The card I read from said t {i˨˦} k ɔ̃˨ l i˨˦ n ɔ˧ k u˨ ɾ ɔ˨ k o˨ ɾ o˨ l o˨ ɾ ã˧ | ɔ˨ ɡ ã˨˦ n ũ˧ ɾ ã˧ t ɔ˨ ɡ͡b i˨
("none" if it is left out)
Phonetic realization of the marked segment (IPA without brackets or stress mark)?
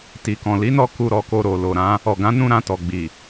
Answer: i˨